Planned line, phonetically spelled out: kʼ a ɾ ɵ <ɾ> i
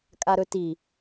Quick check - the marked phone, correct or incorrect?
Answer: incorrect